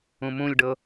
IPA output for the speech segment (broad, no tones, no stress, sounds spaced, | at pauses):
ũ m ũ lʲ ɖ ɤ